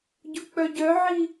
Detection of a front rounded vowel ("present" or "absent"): present